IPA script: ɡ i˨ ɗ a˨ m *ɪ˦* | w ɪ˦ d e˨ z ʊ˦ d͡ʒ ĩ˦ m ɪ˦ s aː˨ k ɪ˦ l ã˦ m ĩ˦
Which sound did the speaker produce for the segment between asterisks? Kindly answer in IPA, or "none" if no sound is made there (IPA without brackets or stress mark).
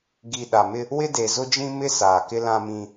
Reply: ɪ˦